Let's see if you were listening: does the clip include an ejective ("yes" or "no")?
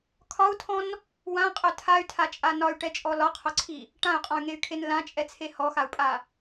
yes